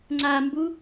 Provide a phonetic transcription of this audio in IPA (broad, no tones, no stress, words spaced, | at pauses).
ŋ͡ǀambu